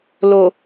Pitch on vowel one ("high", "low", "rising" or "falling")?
low